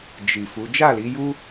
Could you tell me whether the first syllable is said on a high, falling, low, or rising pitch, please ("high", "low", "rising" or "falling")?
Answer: low